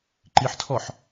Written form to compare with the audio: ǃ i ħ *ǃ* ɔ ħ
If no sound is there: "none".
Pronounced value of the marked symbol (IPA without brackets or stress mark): tʰ